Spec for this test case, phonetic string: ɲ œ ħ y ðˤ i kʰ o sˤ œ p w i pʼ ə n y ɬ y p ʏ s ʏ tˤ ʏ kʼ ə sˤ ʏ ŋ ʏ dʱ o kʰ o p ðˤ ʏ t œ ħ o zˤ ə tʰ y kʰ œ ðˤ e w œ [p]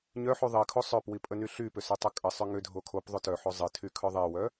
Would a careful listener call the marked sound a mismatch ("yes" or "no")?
yes